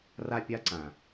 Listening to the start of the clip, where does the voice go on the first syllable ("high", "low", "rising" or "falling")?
high